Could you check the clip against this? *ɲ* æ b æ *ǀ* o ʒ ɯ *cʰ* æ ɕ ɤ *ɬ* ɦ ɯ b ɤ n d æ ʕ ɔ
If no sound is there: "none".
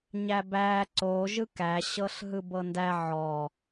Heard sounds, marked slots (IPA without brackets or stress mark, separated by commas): ɲ, ǀ, k, ɬ